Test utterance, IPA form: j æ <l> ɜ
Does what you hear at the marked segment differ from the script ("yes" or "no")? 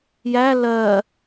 no